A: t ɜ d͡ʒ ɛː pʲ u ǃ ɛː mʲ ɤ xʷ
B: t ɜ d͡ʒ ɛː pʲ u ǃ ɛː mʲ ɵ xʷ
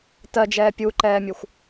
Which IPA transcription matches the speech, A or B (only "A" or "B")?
B